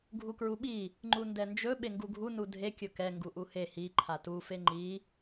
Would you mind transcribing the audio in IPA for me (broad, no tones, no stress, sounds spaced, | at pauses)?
ɡʱ u k ɹ u ɓ i | ŋ͡ǃ u n d ɛ n d͡ʒ ɵ ɓ e ŋ ɡ u ɡʱ u n u dʱ e kʲ ɵ k ɛ ŋ ɡ u ʔ u h e h i ǃʰ a t u f e ŋ͡ǃ i